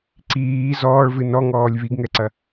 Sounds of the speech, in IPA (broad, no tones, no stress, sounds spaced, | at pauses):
ǀ iː z ɔː ɭ v ɨ n ɔ ŋ ɔː lʲ β i ɡ ŋ ɛ ǀ ɐ